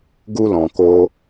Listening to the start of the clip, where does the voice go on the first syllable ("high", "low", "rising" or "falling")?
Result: high